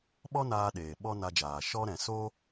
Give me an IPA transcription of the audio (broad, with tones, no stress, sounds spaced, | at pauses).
ɓ ɔ˦ n aː˧ ɗ eː˨ ɓ ɔ˦ n a˧ d͡ʒ aː˨ ʃ ɔ˦ ɾ ɛ̃˨ s o˦